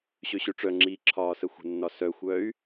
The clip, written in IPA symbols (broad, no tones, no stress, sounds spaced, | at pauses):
ɕ ø ɕ ø ʈ͡ʂ œ ŋ͡ǁ iː ǁʰ ɒː s ə xʷ ə̤ nː ɒ s œ xʷ œ y̯